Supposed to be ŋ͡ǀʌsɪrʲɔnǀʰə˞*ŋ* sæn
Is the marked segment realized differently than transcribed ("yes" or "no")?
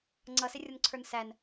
yes